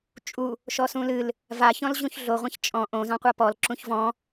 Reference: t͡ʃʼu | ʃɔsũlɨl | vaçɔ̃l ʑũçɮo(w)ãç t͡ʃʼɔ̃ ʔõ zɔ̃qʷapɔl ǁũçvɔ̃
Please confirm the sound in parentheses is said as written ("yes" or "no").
no